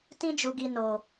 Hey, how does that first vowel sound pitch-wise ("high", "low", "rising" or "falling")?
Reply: high